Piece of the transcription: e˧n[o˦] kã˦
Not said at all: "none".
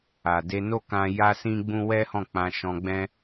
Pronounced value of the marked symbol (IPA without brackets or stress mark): o˦